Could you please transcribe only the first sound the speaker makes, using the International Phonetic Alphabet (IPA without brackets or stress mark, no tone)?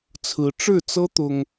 t͡sʰ